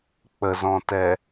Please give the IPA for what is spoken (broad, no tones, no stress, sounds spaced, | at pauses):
k͡p ə z ɔ̃ t ɛ